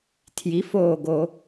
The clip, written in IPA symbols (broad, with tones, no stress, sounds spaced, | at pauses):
tʰ j i˩˥ f oː˧˩ ɡ o˧˩˧